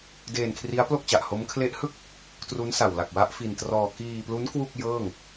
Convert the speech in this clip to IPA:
d eː˧ n kʰ r i˦˥ a̯ p l o˥˩ k̚ t͡ɕ a˨˩ ʔ h o˦˥ m kʰ l e˦˥ ʔ h ɯ˥˩ k̚ | t r u˦˥ n s a˨˩ w l a˨˩ k̚ w a˦˥ ʔ f i˧ n t r ɔː˧ k iː˧ p l u˦˥ n k w u˥˩ k̚ j ɤː˥˩ ŋ

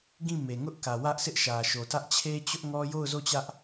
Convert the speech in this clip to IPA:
ɡ ĩ˦˨ m e˨ ŋ ʊ˦ ʔ k ä˨ w ä˦ ʔ sʰ ɪ˦ ʔ ʃ ä˨ ʃ o˨ t ä˦ ʔ t͡ɕʰ e˦ t͡ɕ ʊ˦ ʔ ŋ ɔ˦ j o˦˨ ʊ̯ z o˦˨ t͡ɕ ä˦ ʔ

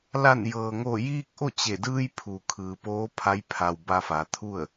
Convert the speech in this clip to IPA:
l a˧˩ n j ɤː˩ ŋ o˧˩ j iː˧ k̚ ʔ o˥˨ t͡ɕ e˧˩ d ɯː˧ j pʰ u˩ kʰ ɯː˩ p oː˧˥ pʰ a˧˥ j pʰ a˩ w b a˧ f a˩˧ t̪ʰ u˥˨ ə̯

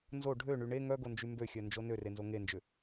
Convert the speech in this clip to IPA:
n z o ɖʱ ø ɳ y ɳ e ŋ œ ɡ o n d͡ʒ y m b ø xʲ œ n d͡ʒ o n ø r e n z o ŋ e n d͡ʒ ʏ

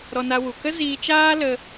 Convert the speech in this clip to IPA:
ɾ ɔ˧ n a˧ w u˨ k ə˦ z iː˧ t͡ʃ aː˦ l ə˧

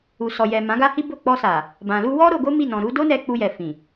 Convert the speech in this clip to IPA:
u˨ s ɔ˨ j ɛ˨ m ã˨˦ ɡ a˦ h i˦ b o˦˨ k͡p ɔ˧ s a˨ | b ã˨ l u˧ w ɔ˦ ɾ o˧ ɡ o˦ m i˦˨ n ɔ̃˨ ɾ u˨˦ d o˦ n ɛ˧ k͡p u˧ j ɛ˨ f ĩ˨

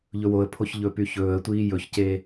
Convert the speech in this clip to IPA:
ʎ ɵ w o ə̯ pʰ o ç ʎ ɵ p y ç ɵː ə̯ tʷ iː j ɵ ç c eː

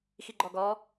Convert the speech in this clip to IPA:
x i ɡ͡ǃ ɔ ɡ ɔ

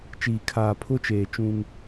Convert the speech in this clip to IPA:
t͡ʃ iː˨ kʰ aː˨ pʰ ʊ˦ t͡ʃ eː˨ t͡ʃ ũ˦ ŋ

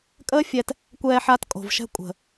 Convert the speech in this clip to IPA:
kʼ əː˦ fʲ ɛ˧ t | kʷ ɛː˧ ħ a˧ t kʼ o̤˨ v ʃ ɛ̤˧ kʷʼ ə̤˨

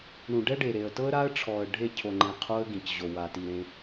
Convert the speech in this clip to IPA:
ɳ ũ˨ ɖ ɛ˦ ɖ e˨ ɾ e˨ ə̯ t ɤ˦ ə̯ ɾ a˦ ə̯ ʈ͡ʂʰ ɔ˨ ə̯ ɖʱ e˦˨ cʰ o˨ ŋ͡ǃ ẽ˨ qʰ o˦ ə̯ ɡ ĩ˨ c ʑ o˨ w a˨ t i˨ ɾ ẽ˦

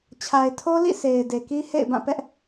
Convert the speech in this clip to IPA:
t͡ɕʰ a˨ ɪ̯ tʰ o˦ l ḭ˦˨ s e˨ ɪ̯ d e˨ k i˦ h ḛ˦˨ ɪ̯ b ã˦˨ p ɛ˦ ʔ

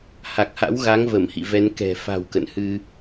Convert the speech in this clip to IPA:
h a˨˩ k̚ h a̰˧˥ w ɣ a˨˦ ŋ v ə˧˩ m h ḭ˧˨ v ɛ˨˦ n k ɛ̤˨˩ f a̤˨˩ w k ə̰˧˨ n h ɨ˧

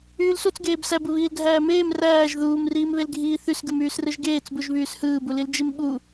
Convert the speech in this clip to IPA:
yː l s u t͡s ɡ eː b s æ b ɯ β iː l dʱ æː m eː m r æː ʒ ð uː m r iː m β e l ɡʱ iː θ y s ɡ ɯ m yː s r ɯ ʒ ɡ eː t͡s b u ʒ β yː s h ɯː b u l i l d͡ʒ i m ɓ u

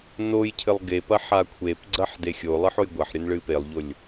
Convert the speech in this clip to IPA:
n o j cʰ ɘ lˠ ɡ e p ɐ ħ a kʷʰ e p ɡ͡ǀ ɐ ħ d e xʲ o lˠ ɨ ħ o j ɡʷ ɐ ħ ɾʲ ɘ n ɭ ɨ p e lˠ ʎ o lʲ

